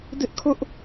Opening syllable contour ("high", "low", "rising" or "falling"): high